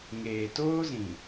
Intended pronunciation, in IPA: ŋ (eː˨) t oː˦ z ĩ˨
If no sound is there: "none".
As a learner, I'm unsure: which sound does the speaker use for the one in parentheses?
eː˨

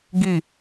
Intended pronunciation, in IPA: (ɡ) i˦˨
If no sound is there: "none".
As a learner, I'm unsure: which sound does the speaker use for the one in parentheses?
ɡ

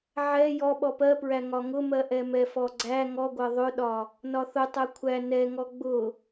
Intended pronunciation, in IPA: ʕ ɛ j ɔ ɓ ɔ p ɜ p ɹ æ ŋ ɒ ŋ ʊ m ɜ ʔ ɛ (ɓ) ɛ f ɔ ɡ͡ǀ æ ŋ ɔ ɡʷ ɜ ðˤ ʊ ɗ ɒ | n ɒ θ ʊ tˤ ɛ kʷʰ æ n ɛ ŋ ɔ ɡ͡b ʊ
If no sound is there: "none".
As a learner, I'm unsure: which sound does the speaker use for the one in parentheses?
m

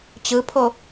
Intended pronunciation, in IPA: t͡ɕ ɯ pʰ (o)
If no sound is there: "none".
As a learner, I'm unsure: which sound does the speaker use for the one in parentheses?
o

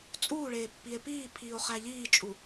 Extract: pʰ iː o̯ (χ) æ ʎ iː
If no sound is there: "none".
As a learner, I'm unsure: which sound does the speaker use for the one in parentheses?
χ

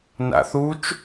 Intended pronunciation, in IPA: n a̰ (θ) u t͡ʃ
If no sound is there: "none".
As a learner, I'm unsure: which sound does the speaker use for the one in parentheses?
θ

